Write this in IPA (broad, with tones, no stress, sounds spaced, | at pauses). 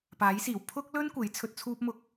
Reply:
p aː˨˥ j s iː˨˩ w pʰ ʊ˥ k̚ l ɵ˥ n kʷ e˨˥ j t͡sʰ ɵ˧ t̚ t͡sʰ uː˥ p̚ m ʊ˧ k̚